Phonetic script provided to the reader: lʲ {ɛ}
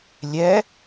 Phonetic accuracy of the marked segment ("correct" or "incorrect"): correct